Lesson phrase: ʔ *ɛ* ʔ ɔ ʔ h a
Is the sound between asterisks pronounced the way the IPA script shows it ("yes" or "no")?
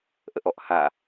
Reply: no